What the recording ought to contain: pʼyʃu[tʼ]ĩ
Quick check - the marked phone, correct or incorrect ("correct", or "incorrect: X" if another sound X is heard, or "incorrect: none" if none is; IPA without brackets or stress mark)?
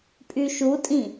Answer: correct